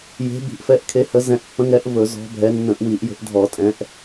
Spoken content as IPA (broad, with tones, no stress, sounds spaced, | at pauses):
j e̤˨˦ b i̤˧˩˧ ʔ f ɛ˨˦ ʔ kʰ e˨˦ h ə˨˦ z ɛ̃˨˦ ʔ pː ə̃˨˦ ŋ ɛ˨˦ ʔ v ɵ˧˩˧ z ɔ̤˨˦ bʱ ɛ˨˦ nː ə̃˧˩˧ ʔ w i˧˩˧ ʔ j ə̤˨˦ ʔ dʱ ɔ˧˩˧ tʼ ɛ̃˨˦ ʔ